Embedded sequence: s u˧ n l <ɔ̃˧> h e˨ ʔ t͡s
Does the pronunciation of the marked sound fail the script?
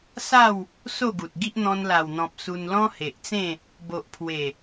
yes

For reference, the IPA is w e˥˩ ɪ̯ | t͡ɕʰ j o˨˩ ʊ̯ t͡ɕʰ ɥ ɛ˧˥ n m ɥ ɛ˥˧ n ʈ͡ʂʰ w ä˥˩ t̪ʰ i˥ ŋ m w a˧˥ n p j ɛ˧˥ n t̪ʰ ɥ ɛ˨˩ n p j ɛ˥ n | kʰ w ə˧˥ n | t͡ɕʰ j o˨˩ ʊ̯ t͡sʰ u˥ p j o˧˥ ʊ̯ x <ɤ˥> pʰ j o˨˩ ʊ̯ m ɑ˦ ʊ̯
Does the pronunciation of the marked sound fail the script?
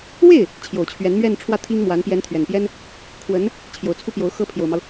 no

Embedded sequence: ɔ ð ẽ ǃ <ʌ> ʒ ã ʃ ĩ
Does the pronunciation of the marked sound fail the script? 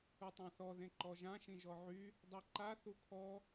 yes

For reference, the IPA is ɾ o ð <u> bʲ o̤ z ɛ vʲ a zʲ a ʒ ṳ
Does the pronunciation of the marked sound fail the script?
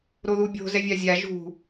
no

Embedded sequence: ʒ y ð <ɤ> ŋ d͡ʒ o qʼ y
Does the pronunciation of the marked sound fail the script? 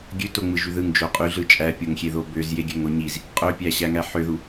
yes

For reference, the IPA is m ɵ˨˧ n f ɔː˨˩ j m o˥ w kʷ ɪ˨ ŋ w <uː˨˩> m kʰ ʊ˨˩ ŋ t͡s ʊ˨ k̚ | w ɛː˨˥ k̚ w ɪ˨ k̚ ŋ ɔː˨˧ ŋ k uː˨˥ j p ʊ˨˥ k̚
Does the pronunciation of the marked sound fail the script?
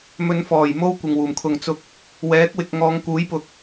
no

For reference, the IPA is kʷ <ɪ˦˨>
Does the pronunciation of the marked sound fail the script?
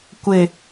yes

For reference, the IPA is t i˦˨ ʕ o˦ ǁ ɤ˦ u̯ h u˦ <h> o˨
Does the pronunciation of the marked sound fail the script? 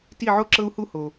no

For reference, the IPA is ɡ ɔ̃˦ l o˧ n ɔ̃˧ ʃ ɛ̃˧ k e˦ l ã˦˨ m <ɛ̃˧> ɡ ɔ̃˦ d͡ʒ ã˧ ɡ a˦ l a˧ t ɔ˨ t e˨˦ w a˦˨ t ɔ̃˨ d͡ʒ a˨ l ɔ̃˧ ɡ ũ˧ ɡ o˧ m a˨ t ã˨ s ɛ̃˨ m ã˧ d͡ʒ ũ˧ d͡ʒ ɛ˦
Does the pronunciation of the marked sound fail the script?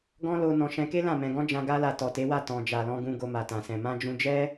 no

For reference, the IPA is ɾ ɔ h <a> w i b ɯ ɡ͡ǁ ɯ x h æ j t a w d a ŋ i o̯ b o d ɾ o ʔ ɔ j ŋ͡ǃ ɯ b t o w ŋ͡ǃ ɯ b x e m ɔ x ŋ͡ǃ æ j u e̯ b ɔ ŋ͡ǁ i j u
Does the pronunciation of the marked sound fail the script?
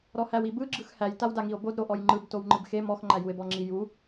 yes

